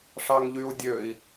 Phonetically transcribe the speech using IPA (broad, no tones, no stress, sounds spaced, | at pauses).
ʂ ɑ ŋ ʎ y u̯ dʲ ø i̯